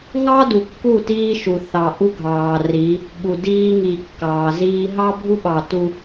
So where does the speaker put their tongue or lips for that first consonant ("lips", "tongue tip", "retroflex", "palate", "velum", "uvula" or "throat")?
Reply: velum